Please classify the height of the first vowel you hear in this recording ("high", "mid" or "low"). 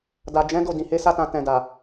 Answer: low